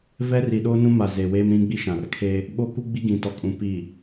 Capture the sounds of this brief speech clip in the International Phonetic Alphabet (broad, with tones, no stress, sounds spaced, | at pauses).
v ɛ˦ r i˨ ɗ oː˦ n ũ˦ m a˨ z e˨ w eː˦ m ɾ ĩ˦ ɡ͡b i˦ ʃ ã˨ r kʰ e˦ | ɓ o˦ k u˦ ɡ͡b i˦ ɡ ĩ˨ t ɔ˨ kʼ ũ˨ p iː˨